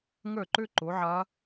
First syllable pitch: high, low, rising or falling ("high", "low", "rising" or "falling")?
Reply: falling